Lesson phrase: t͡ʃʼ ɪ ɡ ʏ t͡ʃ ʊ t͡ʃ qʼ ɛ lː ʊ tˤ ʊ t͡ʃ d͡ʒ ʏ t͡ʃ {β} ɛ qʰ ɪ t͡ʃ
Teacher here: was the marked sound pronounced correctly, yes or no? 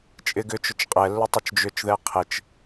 no